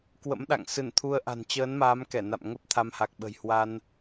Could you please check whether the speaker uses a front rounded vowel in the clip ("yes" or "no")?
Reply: no